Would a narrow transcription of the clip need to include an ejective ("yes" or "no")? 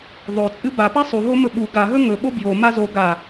yes